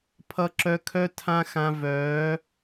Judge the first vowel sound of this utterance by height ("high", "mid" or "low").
mid